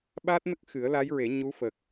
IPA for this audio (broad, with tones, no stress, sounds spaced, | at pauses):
ɓ a˦˥ t̚ n ə˦˥ k̚ x ɨ˨˩˦ ə̯ l a˧˥ j ɹ e˨˩˦ ɲ u˧˥ f ə˨˩ k̚